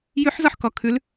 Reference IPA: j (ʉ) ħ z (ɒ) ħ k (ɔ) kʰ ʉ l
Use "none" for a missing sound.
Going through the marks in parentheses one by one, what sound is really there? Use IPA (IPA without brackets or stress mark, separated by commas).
ʉ, ɒ, ɔ